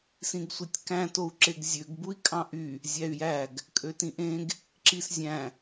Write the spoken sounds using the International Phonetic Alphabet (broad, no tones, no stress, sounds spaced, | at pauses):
s ĩ ɡ sʷ i tʲ k æ̃ t o u̯ ǁ e ɡ zʲ ø ɡ b u i̯ kʼ ɑ̃ ʔ y | zʲ æ y̯ j æ ɡ | kʼ ø t ĩ ʔ ẽ ɡ | ǁ i s zʲ æ̃